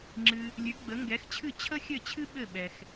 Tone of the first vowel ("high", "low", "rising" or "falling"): low